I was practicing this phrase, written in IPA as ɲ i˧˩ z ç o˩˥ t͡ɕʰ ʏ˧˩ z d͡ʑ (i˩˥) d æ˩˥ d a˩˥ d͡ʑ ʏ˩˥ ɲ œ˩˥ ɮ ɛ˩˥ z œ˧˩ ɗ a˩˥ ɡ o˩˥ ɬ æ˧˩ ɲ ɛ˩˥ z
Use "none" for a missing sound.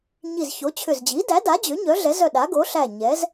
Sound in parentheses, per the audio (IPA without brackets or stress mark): i˩˥